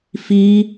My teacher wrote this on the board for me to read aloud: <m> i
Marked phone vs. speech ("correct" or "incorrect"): incorrect